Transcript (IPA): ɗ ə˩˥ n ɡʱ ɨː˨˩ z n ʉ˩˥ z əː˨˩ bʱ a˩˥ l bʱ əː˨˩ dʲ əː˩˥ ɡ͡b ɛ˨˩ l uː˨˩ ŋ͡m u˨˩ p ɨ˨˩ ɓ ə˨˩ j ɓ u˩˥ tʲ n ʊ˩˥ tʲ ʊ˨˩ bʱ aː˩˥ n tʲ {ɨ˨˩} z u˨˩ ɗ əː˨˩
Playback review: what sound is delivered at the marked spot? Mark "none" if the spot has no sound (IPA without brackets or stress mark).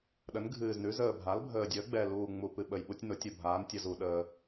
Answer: ə˨˩